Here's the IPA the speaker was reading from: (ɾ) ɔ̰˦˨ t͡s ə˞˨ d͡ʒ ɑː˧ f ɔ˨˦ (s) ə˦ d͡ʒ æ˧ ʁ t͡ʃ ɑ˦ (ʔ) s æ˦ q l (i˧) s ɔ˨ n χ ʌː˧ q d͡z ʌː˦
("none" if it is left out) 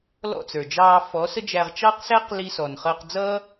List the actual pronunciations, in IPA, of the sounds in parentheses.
l, s, q, i˧

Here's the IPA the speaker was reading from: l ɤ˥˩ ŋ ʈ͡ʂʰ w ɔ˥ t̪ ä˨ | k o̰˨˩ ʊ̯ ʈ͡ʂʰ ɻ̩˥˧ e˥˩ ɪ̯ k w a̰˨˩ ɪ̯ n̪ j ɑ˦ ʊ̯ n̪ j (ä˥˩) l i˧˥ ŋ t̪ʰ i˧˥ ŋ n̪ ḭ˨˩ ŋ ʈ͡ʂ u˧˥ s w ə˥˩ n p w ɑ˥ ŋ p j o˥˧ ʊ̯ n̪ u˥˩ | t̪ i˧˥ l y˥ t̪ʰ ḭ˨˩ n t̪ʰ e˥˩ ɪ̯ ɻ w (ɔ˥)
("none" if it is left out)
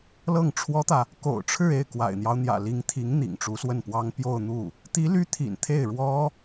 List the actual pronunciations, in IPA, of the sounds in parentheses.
ä̰˨˩, ɔ˥

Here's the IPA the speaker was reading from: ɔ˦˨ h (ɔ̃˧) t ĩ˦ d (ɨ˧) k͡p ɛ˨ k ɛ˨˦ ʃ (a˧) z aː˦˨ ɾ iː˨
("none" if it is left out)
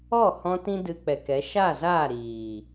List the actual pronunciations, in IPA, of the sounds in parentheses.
ɔ̃˧, ɨ˧, a˦˨

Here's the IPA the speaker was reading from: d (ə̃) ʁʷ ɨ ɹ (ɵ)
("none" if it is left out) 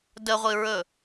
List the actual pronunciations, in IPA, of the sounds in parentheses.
ə, ɵ

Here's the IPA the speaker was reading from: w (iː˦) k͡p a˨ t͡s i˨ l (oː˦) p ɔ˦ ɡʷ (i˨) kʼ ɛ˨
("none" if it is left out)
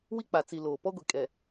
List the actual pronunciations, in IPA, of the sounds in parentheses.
i˦, oː˨, i˨

